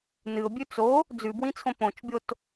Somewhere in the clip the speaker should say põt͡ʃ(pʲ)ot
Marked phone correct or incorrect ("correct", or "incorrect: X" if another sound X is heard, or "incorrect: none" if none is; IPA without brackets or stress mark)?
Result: incorrect: bʲ